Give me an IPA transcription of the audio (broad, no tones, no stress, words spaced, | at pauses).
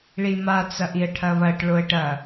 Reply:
ɭima t͡sɐʔiə̯ʈʰɐβɐʈ ɭoə̯ʈɐ